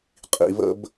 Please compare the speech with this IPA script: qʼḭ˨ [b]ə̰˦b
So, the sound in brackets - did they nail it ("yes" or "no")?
no